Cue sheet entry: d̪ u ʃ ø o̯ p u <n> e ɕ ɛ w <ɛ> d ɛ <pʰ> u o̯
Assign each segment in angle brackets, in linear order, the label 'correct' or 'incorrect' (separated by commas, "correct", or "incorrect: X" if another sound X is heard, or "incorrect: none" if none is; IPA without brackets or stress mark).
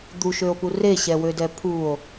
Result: incorrect: r, incorrect: ø, correct